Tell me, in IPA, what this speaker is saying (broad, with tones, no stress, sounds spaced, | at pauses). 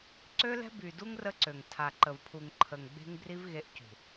ǀ ø˦ l ɛ̤˦ b y˨ d u˦ ŋ r ə˦ ǀ ø˨ ŋ tʰ a˨ ǃ ə˨ v pʰ u˨ ŋ ǃʰ ə˨ ŋ ɡ͡b e̤˦ ŋ b r i˦ v ɣ e˦ ʔ c ṳ˨